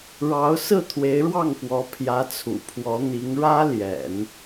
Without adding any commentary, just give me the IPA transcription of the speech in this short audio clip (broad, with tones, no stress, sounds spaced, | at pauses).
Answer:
ɻ ɑ˧˥ ʊ̯ s ɹ̩˥˩ t̪ʰ w e˧˥ ɪ̯ ɻ w ɑ˥˩ ŋ p w ɔ˧˥ pʰ j ä˧˥ t͡sʰ ṵ˨˩ pʰ w ɔ˧˥ n̪ i˧˥ ŋ ɻ ä˥ l j ɛ̰˨˩˦ n